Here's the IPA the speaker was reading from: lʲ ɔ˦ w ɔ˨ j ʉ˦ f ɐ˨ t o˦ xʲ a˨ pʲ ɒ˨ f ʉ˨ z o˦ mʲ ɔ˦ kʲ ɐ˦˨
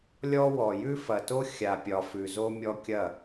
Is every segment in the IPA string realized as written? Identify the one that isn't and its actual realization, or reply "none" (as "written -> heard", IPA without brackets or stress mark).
none